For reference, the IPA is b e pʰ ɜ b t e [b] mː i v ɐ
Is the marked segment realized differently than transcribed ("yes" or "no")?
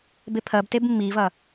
no